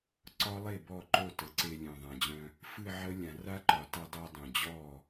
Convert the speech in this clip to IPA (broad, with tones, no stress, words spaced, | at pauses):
ǀɒ˦˥lˠe˥˩ bɔ˥˩ǃo˥˩ tə˨˩˦ǀe˧ lʲœ̃˨˩ðˤã˨˩d͡ʑœ̃˧ | fɨ˥˧ʕə˦˥lʲã˨˩˦ ra˦˥ǃɒ˨˩˦ta˧dˤe˧ dˤœ̃˨˩d͡ʑɔ˥˩